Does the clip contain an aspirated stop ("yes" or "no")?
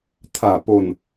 yes